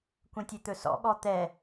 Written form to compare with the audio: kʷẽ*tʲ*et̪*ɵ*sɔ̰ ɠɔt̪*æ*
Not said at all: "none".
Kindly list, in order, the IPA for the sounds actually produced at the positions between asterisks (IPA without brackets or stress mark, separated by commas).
tʲ, ɵ, ɛ